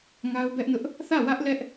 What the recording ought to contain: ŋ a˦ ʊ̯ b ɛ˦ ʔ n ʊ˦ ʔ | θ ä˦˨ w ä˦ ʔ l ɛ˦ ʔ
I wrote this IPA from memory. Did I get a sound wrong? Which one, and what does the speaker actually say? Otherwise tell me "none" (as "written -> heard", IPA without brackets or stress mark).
none